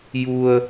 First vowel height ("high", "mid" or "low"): high